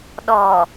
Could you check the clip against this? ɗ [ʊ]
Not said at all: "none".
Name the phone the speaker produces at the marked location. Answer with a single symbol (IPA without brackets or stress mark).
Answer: ɔ